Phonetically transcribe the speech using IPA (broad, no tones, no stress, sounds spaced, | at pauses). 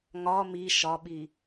ŋ ɒ m i ʃ ɒ ɓ i